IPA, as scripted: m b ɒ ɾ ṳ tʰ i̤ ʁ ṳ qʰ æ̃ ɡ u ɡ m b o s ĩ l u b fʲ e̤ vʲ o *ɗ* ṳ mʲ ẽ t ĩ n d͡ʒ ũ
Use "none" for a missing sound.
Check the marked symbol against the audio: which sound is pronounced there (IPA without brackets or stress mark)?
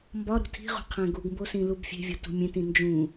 t